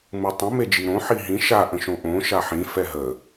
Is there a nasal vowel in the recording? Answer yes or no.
yes